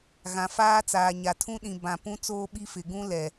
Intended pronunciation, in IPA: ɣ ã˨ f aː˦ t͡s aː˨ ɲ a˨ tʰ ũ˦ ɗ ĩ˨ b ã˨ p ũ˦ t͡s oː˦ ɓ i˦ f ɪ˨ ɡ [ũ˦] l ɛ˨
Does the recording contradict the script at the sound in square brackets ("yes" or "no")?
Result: no